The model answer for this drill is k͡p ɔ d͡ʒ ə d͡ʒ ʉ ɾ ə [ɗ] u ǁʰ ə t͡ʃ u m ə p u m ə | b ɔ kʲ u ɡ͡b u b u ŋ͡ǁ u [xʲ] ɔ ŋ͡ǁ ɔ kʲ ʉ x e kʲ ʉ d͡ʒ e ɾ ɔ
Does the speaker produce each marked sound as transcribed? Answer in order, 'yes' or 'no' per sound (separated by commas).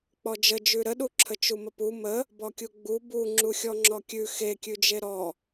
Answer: yes, yes